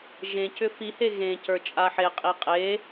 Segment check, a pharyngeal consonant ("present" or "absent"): present